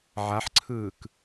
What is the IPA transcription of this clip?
ʕ a ħ ǀʰ ɯː k

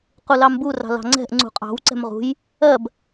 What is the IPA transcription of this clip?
q u l ɑ m b u r ɑ̤ l ɑ̤ ŋ͡ǀ ɛ̤ ʔ ŋ͡ǀ ṳ qʼ ɑ̤ w ǀ ɛ̤ m ʁ ṳ j | ɜ b

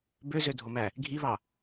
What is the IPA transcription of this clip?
b ø z ø dʱ o m æ | ɡʱ i β ɑ

